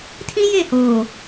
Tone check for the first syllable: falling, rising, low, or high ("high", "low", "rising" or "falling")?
high